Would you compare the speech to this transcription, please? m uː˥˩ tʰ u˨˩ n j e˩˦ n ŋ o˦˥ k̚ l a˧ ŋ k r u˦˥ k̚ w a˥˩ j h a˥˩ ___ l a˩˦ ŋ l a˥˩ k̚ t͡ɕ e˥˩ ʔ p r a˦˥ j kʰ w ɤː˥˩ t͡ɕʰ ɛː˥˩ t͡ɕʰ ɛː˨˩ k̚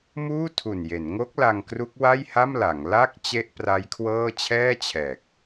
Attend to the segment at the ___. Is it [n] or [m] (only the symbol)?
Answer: m